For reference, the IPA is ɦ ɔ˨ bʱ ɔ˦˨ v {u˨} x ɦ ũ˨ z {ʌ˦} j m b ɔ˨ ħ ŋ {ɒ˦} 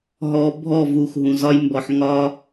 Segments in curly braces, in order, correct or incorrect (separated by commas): correct, incorrect, correct